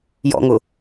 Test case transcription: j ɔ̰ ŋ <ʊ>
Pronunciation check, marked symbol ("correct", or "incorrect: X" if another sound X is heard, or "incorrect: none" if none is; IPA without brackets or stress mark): correct